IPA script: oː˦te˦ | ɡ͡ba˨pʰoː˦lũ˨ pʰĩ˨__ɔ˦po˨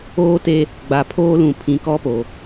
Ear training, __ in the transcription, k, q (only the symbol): k